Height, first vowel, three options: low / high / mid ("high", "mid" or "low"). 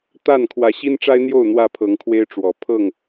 low